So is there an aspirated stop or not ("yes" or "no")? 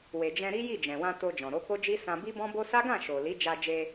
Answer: no